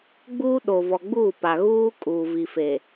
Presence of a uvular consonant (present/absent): absent